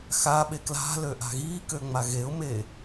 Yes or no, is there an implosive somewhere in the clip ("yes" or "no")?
yes